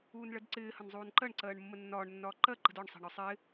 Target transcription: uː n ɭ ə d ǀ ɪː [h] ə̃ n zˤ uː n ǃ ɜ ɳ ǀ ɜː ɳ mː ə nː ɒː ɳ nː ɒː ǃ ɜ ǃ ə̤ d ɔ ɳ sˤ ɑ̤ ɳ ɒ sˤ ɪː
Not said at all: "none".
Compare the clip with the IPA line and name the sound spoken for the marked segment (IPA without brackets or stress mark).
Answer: h